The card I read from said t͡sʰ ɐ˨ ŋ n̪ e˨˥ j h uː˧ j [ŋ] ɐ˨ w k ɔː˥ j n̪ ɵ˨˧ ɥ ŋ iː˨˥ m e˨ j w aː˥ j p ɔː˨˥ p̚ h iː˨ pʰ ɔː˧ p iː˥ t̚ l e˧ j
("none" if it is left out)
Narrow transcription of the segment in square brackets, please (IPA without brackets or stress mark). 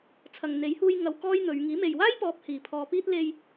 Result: ŋ